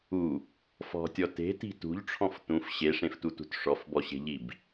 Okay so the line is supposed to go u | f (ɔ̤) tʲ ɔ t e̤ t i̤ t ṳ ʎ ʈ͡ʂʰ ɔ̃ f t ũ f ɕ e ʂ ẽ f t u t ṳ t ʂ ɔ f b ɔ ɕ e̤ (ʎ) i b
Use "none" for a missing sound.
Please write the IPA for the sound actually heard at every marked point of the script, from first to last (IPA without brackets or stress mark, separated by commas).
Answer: ɔ̤, ʎ